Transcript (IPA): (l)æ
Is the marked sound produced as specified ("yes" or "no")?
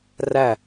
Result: no